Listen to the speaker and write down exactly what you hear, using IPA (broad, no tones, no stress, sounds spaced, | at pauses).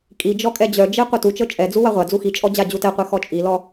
kʼ i d͡ʒ ɔ kʼ ɛ d͡ʑ œ d͡ʒ e qʷ œ t u t͡ʃ ɤ t͡ʃʼ ɛ d͡z u w a ʁʷ a d͡z u x i t͡ʃʼ ɔ d͡ʑ a d͡ʑ u t ɛ qʷ e x ɔ t͡ʃʼ i l ɔ